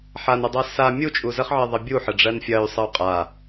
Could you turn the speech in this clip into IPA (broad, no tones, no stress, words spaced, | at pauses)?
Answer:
ħanədˤa sa mʲut͡ʃʼu zəχʕɜðˤɐ bʲuħəɖ͡ʐɜn fʲɐy̯sˤɜu̯ qʼa